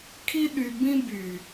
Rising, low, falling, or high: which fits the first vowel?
high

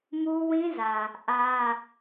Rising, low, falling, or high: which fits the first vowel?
high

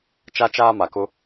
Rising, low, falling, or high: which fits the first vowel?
high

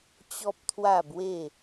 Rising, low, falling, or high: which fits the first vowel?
high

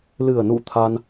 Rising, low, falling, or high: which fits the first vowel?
low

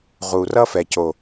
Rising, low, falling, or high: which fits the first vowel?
low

